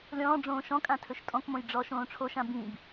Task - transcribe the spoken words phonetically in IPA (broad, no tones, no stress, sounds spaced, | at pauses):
lʲ ɔ̃ː ɖ͡ʐ õː ʃ ɔ̃ kʼ ã tʰ ɵ ʃ tʼ ɔ̃ k m õ j ɖ͡ʐ ɔ ʃ õː ʈ͡ʂʰ o ʃ ã b ĩ b